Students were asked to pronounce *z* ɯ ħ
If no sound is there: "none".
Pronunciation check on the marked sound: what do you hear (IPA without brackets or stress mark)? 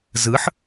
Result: z